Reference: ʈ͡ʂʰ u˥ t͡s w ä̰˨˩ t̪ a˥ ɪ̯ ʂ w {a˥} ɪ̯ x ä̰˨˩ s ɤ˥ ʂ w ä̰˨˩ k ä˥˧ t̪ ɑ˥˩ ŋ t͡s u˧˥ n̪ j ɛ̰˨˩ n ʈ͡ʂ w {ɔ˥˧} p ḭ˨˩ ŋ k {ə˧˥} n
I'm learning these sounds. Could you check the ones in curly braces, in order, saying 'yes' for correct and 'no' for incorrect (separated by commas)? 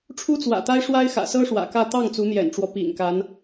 yes, no, no